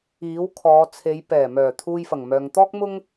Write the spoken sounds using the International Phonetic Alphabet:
iː˨˥ w kʰ ɔː˨˧ t͡sʰ e˨˧ j p ɛː˨˩ m œː˨˩ t̪ʰ uː˧ j f ɐ˨˩ ŋ m œː˨ ŋ t̪ ɔː˥ k̚ m ʊ˥ ŋ

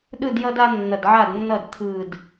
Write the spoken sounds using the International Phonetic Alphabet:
ɗ ɯ˥˨ d j ʌ˦ d a˦ nː ʌ˧˩ d ʕ a˥˨ d nː ʌ˥˨ d t̪ʰ ɯ˧˩ d

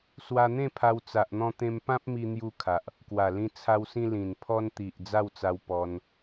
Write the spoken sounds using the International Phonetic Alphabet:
s w a˧ n̪ ẽ˥˧ pʰ a˧ w t͡s a˨ ʔ n̪ ɔ̃˧ t̪ ẽ˧ m p ã˦ p̚ m i˧ n̪ j u˧ kʰ a˨ ʔ | k w a˨˩ l ĩ˧ t͡sʰ a˧ w s ĩ˧ l ĩ˨˩ n pʰ ɔ˧ n t̪ i˨ ʔ d͡z a˥˧ w t͡s a˧ w p ɔ˧ n

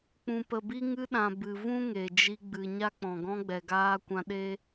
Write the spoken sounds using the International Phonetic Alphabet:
k͡p ũ˨ p ə˨ b i˧ ŋ ɨ˧ ɗ ã˨ b ɨ˨ v ũ˦ ŋ e˨ d͡ʒ i˧ ɡ͡b ɨ˨ ɲ a˧ k͡p ɔ̃˨ ɡ ɔ̃˧ ɡ͡b ɛ˨ ɡ aː˧ kʷ ã˧ ɗ e˦

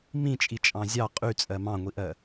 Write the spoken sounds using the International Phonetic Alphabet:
m ĩ t͡ʃʼ i t͡ʃʼ ɑ̃ zʲ ɑ qʼ y t͡sʼ ɜ m ɑ̃ ŋʷ i ʔ ɜ

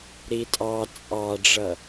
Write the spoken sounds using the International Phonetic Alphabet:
ɾ i tʼ ɑ t͡sʼ ɑ ɖ͡ʐ ʌ

